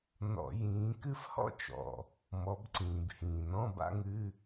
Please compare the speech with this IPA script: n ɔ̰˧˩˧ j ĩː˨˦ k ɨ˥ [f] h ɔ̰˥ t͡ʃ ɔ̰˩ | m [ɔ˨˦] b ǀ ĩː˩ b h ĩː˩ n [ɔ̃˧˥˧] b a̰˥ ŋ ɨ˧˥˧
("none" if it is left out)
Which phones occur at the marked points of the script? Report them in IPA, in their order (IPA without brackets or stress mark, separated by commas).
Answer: f, ɔ˨˦, ɔ̃˧˥˧